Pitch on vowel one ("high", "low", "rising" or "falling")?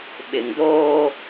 low